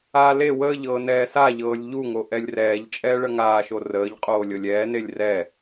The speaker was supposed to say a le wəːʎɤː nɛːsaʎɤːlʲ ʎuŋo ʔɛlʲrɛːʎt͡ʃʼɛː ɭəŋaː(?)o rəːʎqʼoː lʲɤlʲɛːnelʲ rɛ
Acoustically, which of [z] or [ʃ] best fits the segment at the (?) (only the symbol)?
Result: ʃ